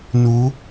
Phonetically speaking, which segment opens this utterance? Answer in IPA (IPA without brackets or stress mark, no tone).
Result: n